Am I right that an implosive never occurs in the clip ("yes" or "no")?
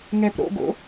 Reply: yes